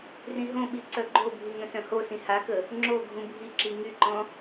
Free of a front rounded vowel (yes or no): no